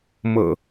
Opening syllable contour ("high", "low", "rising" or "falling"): low